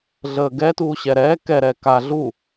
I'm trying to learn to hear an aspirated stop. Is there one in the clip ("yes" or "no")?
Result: no